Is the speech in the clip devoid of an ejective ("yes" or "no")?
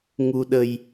yes